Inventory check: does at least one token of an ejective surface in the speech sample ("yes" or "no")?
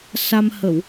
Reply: no